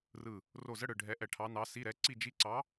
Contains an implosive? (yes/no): no